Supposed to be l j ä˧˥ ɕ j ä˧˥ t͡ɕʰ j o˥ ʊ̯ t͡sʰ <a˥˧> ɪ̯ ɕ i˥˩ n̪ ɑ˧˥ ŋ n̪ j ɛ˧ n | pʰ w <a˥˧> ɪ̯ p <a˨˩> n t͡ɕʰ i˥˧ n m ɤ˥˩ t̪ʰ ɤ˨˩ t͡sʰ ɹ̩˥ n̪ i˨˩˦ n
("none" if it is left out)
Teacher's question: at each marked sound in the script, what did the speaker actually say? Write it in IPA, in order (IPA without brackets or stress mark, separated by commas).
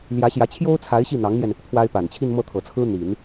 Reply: a˧˥, a˥, a˨˩